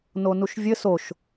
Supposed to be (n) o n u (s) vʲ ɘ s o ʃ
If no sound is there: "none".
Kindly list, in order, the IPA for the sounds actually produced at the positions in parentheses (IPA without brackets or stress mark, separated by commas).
n, ʃ